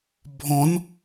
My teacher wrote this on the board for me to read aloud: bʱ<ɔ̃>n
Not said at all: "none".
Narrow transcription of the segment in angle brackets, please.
ɔ̃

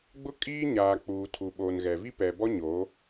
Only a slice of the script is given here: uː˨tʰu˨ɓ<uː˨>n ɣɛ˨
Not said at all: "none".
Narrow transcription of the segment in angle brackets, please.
oː˨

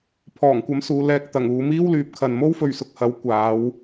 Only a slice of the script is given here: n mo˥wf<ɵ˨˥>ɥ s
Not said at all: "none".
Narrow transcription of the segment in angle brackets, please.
ɵ˨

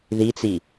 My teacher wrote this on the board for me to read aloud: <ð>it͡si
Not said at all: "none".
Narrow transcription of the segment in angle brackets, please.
ð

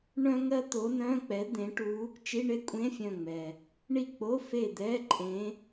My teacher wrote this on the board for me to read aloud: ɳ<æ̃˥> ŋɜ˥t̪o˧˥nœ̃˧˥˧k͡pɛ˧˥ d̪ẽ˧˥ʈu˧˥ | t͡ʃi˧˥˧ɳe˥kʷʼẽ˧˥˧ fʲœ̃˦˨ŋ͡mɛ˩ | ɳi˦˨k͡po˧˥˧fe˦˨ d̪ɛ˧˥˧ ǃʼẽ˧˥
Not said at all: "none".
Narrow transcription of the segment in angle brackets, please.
œ̃˥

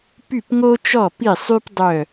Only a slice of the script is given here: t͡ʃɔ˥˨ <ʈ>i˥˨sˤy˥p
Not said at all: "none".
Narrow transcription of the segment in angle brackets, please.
p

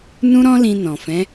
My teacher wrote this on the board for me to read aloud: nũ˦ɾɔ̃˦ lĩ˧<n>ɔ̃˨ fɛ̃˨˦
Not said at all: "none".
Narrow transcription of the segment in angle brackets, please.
n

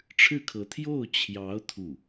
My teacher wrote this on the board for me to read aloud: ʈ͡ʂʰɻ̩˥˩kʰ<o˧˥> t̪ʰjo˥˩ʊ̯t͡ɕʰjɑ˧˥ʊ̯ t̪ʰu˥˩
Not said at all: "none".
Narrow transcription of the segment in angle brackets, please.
ɤ˧˥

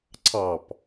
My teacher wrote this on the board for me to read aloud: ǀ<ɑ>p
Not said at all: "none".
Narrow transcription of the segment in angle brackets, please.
ɑ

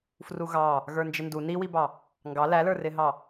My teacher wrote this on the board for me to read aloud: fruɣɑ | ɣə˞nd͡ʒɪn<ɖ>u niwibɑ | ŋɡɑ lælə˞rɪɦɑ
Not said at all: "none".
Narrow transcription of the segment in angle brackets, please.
d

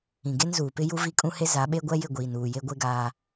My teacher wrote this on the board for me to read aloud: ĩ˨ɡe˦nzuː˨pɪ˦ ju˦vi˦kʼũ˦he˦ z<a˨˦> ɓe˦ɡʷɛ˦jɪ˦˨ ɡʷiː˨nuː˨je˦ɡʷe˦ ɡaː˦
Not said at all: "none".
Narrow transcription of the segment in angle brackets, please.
a˨˦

